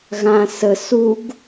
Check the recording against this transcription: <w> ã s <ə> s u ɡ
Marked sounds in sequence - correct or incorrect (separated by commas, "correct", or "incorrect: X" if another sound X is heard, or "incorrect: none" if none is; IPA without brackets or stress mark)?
incorrect: ɣ, correct